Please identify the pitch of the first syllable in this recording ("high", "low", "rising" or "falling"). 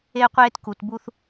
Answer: high